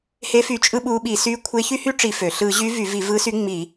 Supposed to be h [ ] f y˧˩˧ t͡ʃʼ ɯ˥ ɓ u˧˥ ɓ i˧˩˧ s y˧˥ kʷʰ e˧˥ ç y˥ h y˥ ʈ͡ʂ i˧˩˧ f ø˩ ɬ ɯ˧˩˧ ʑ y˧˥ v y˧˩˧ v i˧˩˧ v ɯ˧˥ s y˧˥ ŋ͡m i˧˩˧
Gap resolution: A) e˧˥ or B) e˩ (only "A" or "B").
A